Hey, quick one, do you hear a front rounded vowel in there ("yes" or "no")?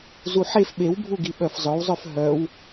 yes